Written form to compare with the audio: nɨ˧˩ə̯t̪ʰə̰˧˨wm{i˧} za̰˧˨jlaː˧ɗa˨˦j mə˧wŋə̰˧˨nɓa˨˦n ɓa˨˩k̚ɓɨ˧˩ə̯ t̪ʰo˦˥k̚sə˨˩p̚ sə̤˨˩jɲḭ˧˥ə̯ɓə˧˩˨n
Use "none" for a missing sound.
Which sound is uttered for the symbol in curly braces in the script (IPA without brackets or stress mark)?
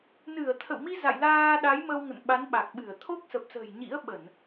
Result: i˧